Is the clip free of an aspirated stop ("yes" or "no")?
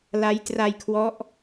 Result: no